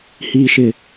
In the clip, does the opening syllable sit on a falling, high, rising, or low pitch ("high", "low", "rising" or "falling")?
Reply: high